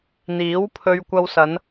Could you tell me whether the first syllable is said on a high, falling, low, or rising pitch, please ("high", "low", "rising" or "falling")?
rising